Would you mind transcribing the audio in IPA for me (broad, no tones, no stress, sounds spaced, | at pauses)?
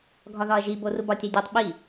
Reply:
ɡʱ ɒ ð ɒ ɐ̯ ʒ i b o r u b ɒ tʲ æ dʲ e tˤ ɓ i